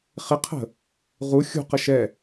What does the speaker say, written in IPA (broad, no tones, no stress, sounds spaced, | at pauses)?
χ ɪ qʰ ə̤ | ʁ u xʲ ṳ q ə ʃ ɛ